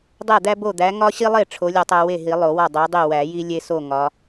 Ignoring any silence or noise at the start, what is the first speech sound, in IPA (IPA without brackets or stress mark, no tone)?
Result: dˤ